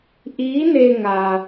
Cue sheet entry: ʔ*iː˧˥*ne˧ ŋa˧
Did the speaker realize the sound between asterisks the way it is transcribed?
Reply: yes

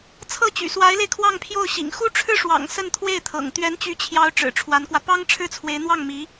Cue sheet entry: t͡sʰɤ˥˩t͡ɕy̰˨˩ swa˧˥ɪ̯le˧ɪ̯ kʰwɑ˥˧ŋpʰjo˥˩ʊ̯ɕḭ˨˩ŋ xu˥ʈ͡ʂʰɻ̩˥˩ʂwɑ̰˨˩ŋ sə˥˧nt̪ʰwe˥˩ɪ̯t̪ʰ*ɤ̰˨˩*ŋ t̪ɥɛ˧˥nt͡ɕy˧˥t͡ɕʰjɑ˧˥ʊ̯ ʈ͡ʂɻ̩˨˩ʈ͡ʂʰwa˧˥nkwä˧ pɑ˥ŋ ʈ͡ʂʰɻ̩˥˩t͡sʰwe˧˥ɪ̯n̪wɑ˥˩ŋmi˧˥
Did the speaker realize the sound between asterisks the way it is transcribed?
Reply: yes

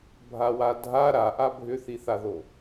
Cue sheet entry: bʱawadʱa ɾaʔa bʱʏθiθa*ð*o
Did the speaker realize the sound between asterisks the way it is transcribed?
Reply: yes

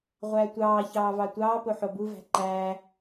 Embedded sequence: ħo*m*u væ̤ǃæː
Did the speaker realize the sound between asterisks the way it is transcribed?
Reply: no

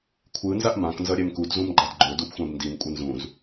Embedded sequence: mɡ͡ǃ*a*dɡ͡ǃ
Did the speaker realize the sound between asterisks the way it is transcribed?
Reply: yes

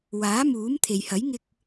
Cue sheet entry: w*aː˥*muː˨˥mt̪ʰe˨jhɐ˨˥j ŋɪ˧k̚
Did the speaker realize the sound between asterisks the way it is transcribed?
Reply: no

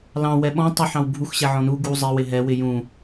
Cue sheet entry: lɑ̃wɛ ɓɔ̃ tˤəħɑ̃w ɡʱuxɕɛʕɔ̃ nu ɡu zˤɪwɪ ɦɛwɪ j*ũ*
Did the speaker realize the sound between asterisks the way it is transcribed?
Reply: yes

